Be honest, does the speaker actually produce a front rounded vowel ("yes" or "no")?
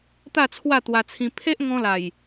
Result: no